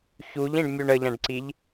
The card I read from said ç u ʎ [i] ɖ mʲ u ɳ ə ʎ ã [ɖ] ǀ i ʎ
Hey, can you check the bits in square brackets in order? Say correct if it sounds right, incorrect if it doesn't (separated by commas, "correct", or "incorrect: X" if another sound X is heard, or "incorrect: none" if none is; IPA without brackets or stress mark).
incorrect: ĩ, correct